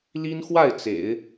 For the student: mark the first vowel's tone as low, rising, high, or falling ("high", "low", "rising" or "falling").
high